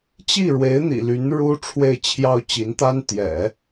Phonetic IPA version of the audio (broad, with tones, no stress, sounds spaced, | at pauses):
t͡ɕ i˥˩ ɻ w e˧˥ ɪ̯ n̪ ḭ˨˩ l y˧˥ n ɻ u˥ ʈ͡ʂʰ w e˥˩ ɪ̯ t͡ɕʰ j ɑ˥ ʊ̯ t͡ɕ i˧˥ n t̪ a˥ n t̪ j ɛ̰˨˩˦